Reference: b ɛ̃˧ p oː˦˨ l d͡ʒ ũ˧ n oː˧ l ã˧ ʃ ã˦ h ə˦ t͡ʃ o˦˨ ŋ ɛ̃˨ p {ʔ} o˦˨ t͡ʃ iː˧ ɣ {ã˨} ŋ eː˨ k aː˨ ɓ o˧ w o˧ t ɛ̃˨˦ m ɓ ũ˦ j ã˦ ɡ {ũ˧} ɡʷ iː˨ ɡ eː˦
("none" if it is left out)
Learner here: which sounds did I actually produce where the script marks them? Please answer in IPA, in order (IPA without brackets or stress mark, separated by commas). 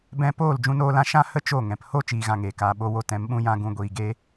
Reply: h, ã˨, ũ˧